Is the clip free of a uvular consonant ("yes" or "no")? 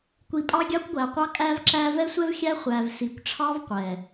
no